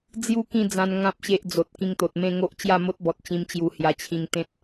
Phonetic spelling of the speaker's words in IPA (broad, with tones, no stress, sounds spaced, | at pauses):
d͡z j u˦ k ĩ˥˧ d͡z ã˧ n ŋ ã˦ p̚ ɕ e˦ ʔ d͡z o˨ t̚ k ĩ˧ ŋ t̪ o˨ t̚ m ẽ˥˧ ŋ o˦ ʔ t͡ɕ j a˥˧ m o˦ t̚ b ɔ˨ t̚ t͡ɕ ĩ˧ m t͡ɕ j u˧ h j a˧ t͡ɕʰ ĩ˧ ŋ t̪ ẽ˦ t̚